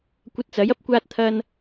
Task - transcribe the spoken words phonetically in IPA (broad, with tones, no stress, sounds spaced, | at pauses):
kʷ ɐ˧ t̚ t͡s ɐ˨˥ j ɐ˥ p̚ kʷ aː˧ t̚ t̪ʰ ɐ˧ n